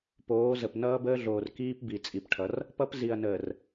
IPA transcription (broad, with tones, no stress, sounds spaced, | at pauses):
p oː˨˦ z ə˨ p n ʌː˦ b əː˦ ɮ oː˨ r k iː˦ p b i˨ t͡sʼ i˨ p ʈʰ ʌ˨˦ r | p ʌ˦ p z i˨ ɐ̯ n əː˨ r